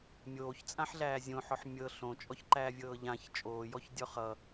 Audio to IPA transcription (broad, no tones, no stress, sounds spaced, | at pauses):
mʲ oː ç t͡sʼ ã ħ ɮ æː zʲ õ ħ ɔ ħ mʲ ɤ ɬ õ t͡ʃʼ ɔ ç ǃ æː vʲ ɤː ʎ ã ç t͡ʃʼ oː j ɔ ç dʲ ɔ χ ʌ